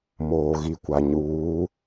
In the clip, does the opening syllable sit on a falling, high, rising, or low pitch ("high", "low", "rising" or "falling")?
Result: low